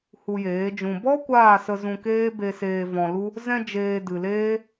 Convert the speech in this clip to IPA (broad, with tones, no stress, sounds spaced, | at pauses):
h u˧ j eː˨˦ d͡ʒ ũ˧ b ɔ˦ kʷ aː˦˨ s ə˧ z ũ˧ k eː˦ b e˧ s eː˧ v ɔ̃˧ l u˦ | z ɛ̃˧ d͡ʒ eː˨ d ɨ˨ l eː˦